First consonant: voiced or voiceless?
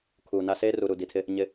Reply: voiceless